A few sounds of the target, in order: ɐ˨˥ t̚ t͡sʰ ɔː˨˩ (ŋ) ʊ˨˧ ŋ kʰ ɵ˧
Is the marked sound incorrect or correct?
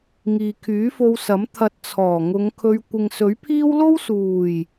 correct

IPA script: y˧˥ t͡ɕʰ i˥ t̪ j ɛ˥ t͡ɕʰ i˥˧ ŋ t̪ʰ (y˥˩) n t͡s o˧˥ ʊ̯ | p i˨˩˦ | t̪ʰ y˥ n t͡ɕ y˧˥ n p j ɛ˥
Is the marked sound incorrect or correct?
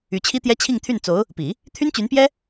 correct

